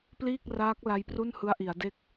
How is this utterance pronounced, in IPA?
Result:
p l iː˥˩ k̚ r aː˦˥ k̚ l a˦˥ j p r u˥˩ n h ɯ˦˥ a̯ ʔ i˩˦ a̯ d e˥˩ k̚

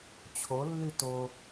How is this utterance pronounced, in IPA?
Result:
t͡ɕʰ o lː y t o

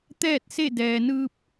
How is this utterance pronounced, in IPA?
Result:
t̪ ɛː˥˨ t̚ s e˥˨ d ɛː˩ n ɯː˧ p̚

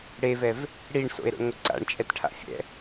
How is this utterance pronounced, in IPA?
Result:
ɽ e v ɛ v | ɽ i ɳ s o̰ e̯ ɾ o̰ ɳ ŋʷ ɪ ǀ a̰ ɳ t͡ʃʼ ɛ t ʈʰ a̰ fʲ ɛ̰

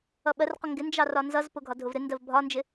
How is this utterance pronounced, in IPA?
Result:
ʌ ɓ ɜ r q ʊ ŋ ɡ ɪ n d͡ʒ ɑ r ɒ n z ʌ z p ʊ ɡʱ ɒ dʱ ʊ v ɾ ɪ n d ɜ v bʱ ɒ n d͡ʒ ɪ

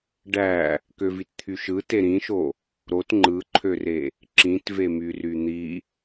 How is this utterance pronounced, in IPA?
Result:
ɖ æ | k ø v i t t̪ʰ y ʃ ɯ t e ɾ ĩ ʃ o | ɾ o t ŋ͡ǃ ɯ ǃʰ ø r e | ǁ ĩ t v e m y r y n̪ i

